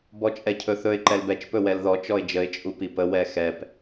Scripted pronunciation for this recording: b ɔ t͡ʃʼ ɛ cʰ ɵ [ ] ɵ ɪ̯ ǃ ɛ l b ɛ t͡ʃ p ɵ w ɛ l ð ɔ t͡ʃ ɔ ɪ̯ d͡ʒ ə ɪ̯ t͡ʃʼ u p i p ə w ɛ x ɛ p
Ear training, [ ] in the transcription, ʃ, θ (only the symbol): θ